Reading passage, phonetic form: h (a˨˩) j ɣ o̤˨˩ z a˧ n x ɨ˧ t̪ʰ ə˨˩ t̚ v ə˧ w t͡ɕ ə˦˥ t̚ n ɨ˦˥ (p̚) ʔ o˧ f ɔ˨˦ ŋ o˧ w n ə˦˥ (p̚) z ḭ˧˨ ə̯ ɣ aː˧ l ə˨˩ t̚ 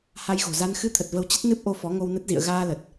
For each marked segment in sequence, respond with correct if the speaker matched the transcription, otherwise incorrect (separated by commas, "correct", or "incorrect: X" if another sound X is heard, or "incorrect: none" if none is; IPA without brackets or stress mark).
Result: incorrect: a˧, correct, incorrect: t̚